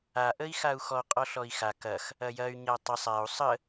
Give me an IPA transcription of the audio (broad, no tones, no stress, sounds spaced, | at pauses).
a ʔ ə i̯ x a u̯ x ɔ qʼ ɔ ɬ ɔ i̯ x a k ɐ x | ɐ j ɐ y̯ ɲ a tˤ ɐ sˤ a u̯ sˤ ə